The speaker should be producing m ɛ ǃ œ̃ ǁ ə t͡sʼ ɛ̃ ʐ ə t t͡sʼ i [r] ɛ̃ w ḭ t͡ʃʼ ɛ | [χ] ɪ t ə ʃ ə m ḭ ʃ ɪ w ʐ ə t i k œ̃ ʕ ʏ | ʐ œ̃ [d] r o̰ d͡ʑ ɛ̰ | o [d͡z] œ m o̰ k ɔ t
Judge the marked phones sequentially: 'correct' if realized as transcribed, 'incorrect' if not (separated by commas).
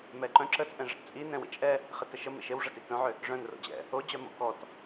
incorrect, correct, incorrect, incorrect